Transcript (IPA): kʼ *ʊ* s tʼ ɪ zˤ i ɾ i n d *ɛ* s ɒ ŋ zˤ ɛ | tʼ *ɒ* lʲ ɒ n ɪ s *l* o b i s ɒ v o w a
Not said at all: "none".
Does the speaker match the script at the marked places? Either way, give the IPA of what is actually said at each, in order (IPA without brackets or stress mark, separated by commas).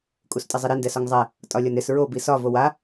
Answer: u, ɛ, ɒ, ɹ